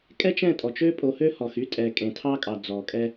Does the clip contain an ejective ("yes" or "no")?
yes